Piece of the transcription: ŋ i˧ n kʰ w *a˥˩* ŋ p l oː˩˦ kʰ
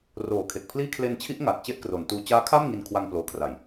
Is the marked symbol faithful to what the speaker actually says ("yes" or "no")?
no